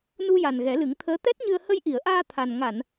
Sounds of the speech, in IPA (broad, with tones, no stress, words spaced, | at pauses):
nu˧ja˨˩n ɣɛ˨˩˦lɨ˨˩˦ŋt̪ʰəː˧˥ t̪ɛ˦˥t̚ɲɨ˧ə̯ hə˧jʔi˨˩˨ə̯ʔaː˧ t̪ʰa˨˩n ŋa˨˩˨n